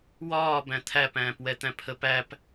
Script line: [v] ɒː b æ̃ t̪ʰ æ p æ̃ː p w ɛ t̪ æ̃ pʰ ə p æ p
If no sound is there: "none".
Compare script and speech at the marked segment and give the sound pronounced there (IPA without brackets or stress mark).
w